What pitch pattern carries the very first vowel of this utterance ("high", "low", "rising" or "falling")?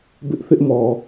high